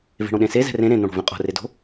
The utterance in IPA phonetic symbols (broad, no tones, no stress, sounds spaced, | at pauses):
v e̤ ɽ õ ɗ ẽ s e z ɛ̤ r ẽ ɾ ẽ n̪ õ ɽ o̤ v ẽ qʼ o̤ r e d o̤